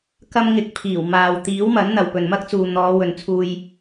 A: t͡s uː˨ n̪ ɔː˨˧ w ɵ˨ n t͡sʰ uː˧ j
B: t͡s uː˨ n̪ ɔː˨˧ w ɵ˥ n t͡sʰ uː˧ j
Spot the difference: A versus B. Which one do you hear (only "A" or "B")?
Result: A